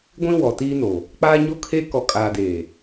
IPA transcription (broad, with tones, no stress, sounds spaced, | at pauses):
ɡʷ ĩ˦ w ɔ˨ t iː˦ n o˨ | k͡p aː˦ ɲ o˦ kʰ eː˦ k ɔ˨ kʼ aː˨ d eː˨